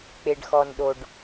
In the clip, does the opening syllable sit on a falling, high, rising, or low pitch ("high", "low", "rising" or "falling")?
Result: low